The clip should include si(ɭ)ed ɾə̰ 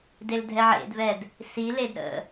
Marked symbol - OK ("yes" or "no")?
no